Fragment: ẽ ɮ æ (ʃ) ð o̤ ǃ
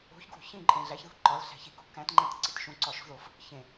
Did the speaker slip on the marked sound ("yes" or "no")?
yes